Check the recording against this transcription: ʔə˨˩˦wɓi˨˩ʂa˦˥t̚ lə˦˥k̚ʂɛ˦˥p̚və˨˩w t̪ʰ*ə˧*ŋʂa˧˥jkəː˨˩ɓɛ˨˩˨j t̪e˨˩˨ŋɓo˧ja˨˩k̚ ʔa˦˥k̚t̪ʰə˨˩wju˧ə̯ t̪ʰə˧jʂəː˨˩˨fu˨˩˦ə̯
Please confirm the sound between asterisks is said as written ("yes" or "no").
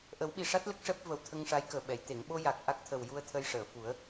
yes